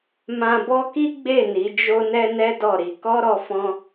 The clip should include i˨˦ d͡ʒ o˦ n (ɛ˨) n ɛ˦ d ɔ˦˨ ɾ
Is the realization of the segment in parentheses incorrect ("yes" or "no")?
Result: yes